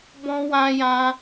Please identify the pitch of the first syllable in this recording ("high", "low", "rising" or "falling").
high